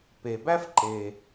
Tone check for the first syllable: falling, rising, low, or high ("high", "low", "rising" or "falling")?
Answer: low